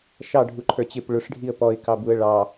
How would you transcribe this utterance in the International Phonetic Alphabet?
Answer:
ʃ ɑ ɖʱ u ǃʰ ə˞ t͡ɕ ɪ p ɭ ʊ ʂ ɖʱ i ə̯ p ɔ ɪ̯ k ɑ b u ə̯ ɭ ɑ

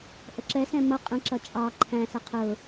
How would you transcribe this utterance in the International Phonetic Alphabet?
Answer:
ʔ ə ǁ ɛ s ɛ̃ m ʌ qʼ ə̃ ǁ ʌ t͡ʃʼ ɑ ǃʰ æ̃ s ə qʰ ʊ

